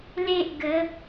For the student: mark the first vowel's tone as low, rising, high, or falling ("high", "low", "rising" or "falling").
high